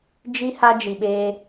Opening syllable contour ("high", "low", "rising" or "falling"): high